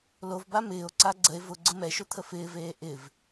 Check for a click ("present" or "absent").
present